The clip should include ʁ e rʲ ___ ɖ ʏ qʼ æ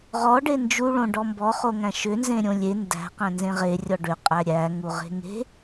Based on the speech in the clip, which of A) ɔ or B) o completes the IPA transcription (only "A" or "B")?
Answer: A